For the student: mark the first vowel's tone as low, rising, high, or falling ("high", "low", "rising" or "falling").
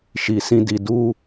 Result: low